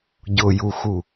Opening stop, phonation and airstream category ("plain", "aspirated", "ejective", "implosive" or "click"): plain